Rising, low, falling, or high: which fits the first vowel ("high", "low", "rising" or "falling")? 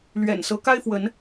low